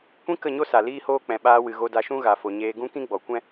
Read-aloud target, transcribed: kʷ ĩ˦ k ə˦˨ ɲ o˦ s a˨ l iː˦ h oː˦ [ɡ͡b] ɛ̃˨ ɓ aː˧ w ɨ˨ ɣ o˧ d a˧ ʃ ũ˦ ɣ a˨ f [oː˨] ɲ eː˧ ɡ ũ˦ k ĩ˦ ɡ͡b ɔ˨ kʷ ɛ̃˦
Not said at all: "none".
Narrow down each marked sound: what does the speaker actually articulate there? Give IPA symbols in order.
k͡p, o˨

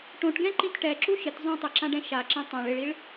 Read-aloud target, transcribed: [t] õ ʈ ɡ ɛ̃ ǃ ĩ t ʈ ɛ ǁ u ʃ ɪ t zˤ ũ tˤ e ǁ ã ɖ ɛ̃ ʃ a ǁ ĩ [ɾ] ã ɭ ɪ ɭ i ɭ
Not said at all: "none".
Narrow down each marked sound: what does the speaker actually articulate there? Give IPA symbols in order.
ʈ, tˤ

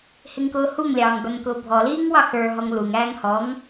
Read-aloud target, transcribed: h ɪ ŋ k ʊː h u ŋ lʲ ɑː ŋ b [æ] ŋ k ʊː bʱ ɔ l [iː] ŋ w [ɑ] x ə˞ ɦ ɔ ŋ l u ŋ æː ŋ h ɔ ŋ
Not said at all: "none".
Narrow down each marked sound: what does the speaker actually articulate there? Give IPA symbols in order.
æ, iː, ɑ

